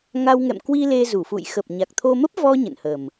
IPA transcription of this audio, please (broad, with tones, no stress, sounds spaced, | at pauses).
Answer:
ŋ a˧ w ŋ ɛ̰˧˨ m k w i˧ l e˧ z u˧˩ f ṵ˧˨ j x ə˨˩ p̚ ɲ a˨˩ k̚ t̪ʰ o˧ m ə˦˥ p̚ v ɔ˧ ɲ ə̰˧˨ n h ə˨˩ m